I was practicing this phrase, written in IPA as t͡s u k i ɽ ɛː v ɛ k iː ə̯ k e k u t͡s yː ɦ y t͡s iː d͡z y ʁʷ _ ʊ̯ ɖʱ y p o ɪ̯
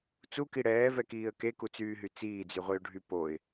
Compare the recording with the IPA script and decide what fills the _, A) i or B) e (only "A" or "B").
A